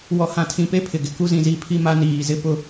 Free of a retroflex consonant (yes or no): yes